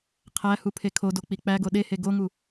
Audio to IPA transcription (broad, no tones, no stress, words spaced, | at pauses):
qʰæ hupʰekʰodo k͡pik͡pæɡo ɗehe ɡoŋu